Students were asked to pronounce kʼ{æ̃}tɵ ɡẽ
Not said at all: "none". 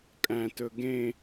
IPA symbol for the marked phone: æ̃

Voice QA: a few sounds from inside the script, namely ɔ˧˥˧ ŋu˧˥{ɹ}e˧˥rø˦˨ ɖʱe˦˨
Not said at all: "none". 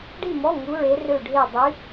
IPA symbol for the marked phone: ɹ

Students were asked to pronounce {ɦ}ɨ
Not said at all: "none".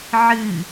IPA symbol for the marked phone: ʕ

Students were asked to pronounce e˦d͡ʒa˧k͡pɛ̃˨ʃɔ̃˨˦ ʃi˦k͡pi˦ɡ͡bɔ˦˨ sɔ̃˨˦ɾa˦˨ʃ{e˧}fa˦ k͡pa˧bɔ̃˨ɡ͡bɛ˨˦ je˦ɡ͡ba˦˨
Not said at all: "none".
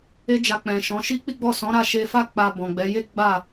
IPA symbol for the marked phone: e˧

